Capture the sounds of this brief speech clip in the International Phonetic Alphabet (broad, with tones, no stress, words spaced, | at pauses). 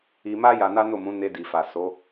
i˧ma˦ ja˧na˦no˦˨mũ˨˦ ne˧di˨fa˨ so˨˦